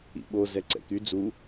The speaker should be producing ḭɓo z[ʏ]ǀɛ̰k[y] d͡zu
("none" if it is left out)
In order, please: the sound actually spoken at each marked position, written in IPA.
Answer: ɛ, y

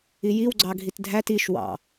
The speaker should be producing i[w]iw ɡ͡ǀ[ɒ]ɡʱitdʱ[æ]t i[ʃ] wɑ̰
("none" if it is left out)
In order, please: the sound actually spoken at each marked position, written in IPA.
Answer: j, ɑ, æ, ʃ

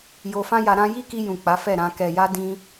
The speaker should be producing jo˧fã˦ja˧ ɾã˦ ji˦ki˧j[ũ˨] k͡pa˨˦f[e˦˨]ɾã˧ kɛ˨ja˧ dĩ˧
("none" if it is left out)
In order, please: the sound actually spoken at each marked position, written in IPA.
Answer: ũ˨, ɛ˦˨

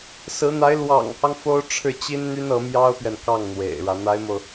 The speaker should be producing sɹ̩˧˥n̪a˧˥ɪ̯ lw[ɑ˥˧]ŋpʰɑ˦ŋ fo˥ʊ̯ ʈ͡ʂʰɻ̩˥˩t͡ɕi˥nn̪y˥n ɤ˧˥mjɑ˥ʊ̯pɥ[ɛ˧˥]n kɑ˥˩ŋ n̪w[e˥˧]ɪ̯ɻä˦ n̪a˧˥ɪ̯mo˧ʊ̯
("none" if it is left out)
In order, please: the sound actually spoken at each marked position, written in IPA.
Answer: ɑ̰˨˩, ɛ˨, ḛ˨˩

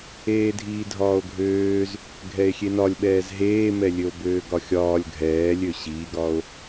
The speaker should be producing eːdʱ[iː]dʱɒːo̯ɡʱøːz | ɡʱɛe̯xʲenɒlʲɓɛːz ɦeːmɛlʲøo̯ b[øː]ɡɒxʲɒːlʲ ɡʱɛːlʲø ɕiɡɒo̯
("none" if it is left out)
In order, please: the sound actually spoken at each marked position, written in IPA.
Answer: iː, øː

